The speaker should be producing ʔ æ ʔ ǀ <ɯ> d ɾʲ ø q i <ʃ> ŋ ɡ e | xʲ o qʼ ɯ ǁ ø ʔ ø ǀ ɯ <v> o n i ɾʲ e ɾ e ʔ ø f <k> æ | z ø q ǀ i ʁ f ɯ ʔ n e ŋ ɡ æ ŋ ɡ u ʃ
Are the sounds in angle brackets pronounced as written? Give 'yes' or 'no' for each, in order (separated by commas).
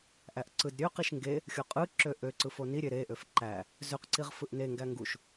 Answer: yes, yes, no, no